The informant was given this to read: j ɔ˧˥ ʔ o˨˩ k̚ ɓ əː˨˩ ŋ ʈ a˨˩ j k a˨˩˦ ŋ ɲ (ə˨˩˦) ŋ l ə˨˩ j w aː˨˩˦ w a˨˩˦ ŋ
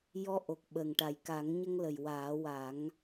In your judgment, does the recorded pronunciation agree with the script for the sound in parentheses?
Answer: no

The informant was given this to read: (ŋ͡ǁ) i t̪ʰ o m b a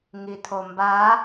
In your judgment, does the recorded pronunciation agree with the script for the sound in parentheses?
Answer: no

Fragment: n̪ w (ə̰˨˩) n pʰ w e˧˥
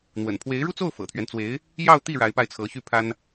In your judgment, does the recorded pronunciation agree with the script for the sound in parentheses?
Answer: yes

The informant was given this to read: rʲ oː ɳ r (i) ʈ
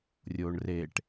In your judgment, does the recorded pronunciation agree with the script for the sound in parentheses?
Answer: no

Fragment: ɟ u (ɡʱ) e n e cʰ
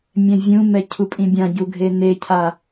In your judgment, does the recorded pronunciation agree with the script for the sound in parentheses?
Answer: yes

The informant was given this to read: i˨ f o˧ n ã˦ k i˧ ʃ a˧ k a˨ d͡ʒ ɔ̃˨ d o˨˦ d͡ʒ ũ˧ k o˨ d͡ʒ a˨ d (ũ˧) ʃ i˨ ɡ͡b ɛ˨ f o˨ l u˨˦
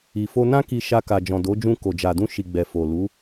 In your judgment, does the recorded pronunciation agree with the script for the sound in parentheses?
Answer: yes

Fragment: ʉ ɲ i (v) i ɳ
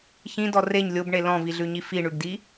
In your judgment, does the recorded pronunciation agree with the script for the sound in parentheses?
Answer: no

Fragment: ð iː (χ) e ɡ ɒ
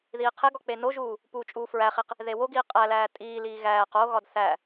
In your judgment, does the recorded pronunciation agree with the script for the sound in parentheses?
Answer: no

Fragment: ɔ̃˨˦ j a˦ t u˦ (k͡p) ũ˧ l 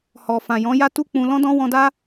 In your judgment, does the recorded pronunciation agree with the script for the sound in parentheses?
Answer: yes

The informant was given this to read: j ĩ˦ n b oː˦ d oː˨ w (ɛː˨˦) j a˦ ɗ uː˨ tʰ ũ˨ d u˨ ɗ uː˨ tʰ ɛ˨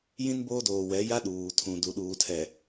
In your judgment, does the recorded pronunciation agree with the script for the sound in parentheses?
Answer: no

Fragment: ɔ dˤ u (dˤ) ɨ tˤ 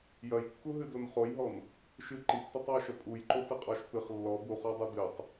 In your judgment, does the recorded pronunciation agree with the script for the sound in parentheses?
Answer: no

